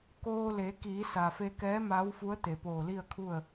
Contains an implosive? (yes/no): no